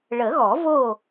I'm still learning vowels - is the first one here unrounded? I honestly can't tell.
yes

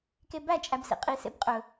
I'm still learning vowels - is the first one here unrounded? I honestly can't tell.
yes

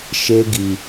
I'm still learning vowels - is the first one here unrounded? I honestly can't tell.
yes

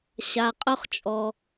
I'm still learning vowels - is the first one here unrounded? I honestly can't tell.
yes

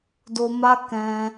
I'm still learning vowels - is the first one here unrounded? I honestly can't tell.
no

